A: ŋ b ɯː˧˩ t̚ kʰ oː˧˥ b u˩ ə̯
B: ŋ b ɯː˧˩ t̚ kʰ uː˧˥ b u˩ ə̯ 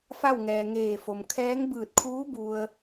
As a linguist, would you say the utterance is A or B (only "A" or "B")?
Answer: B